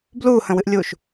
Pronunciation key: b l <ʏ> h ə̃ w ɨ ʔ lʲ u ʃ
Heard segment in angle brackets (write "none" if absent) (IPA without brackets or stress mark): u